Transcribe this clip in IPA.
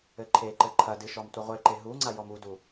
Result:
ɘ ǃʰ e ǃ ɘ ǃʰ ɐ d ɨ ʃ ɔ m tʷ ɨ ʁʷ e ǃ e ɦ u ŋ͡ǀ a j ɔ m u d u

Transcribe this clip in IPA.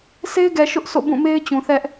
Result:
sʰ e˦ ɪ̯ ɡ ɛ˨ ʃ ʊ˦ ʔ sʰ o̰˦˨ b ũ˦˨ m e˦ ɪ̯ t͡ɕ ũ˨ θ ɛ˦ ʔ

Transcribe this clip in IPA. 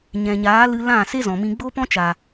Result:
ɲ ɛ̃˨ ɲ aː˨˦ l ɨ˧ l ã˦˨ s e˦ z ɔ̃˨ m ĩ˧ ɡ͡b o˦ p ɔ̃˦ t͡ʃ a˨

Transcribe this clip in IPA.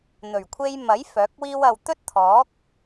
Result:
n̪ ɵ˨˩ ɥ kʷʰ e˧ j m ɐ˨˥ j f œː˨˥ k̚ w iː˥ w ɐ˧ w t̪ ɵ˥ t̚ t̪ʰ ɔː˨˥ k̚

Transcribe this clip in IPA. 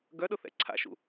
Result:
ɡ œ ɗ ʊ θ ɛ̰ ǀʰ a̰ ʃ ṵ

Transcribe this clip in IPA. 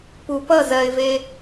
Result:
p u p ʌ z ɜ ɪ̯ v e

